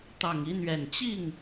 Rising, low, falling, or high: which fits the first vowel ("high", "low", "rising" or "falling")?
low